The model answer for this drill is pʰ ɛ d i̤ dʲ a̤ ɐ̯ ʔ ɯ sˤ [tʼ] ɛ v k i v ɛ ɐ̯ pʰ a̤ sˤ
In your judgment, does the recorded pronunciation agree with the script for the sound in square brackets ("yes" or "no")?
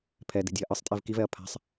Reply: yes